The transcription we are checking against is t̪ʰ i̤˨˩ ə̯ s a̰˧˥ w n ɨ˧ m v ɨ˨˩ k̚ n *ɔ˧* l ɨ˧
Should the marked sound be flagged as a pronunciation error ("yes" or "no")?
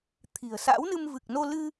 yes